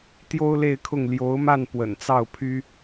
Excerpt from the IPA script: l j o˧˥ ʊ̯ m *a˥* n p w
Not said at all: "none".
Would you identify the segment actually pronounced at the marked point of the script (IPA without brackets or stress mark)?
a˥˩